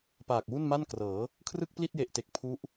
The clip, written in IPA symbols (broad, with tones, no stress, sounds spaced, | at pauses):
p aː˨˩ k̚ w u˥˩ n m a˥˩ n k r ɤː˩˦ | kʰ r ɯ˥˩ k̚ p l i˥˩ t̚ j e˨˩ ʔ t e˨˩ k̚ pʰ u˦˥ ʔ